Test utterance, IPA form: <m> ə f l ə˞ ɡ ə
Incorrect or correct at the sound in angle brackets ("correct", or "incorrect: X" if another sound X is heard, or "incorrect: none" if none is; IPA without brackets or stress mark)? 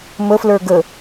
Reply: correct